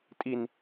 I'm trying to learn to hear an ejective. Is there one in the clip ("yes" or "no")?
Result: yes